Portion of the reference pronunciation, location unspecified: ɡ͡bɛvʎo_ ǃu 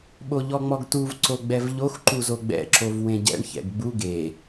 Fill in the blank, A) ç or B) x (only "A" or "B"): B